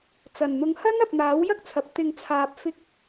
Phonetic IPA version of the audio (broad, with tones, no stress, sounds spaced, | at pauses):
t͡s ɐ˨˩ n n̪ ʊ˨˧ ŋ h ɐ˥ n ɐ˨ p̚ n̪ aː˨˥ w j ɐ˥ k̚ t͡sʰ ɐ˨ p̚ t̪ ɪ˨ ŋ t͡sʰ aː˨ p̚ f ɪ˧ k̚